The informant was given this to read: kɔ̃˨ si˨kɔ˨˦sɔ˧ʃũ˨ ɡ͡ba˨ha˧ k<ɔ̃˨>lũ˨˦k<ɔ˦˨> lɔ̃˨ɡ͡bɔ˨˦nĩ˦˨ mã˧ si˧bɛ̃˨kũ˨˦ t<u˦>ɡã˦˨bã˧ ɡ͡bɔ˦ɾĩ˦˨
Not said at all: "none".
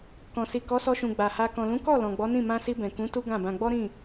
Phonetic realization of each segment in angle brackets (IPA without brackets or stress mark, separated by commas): ɔ̃˨, ɔ˦˨, u˦